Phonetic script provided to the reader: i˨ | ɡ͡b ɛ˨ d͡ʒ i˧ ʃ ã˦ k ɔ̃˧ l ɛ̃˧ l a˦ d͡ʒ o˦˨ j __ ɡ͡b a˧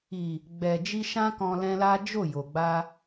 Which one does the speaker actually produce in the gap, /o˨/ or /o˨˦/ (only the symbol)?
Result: o˨